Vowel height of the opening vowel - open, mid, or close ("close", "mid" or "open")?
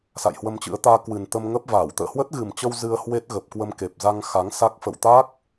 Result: open